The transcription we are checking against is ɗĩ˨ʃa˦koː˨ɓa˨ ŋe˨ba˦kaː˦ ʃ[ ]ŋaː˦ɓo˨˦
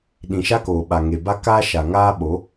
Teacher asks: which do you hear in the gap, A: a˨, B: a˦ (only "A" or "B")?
A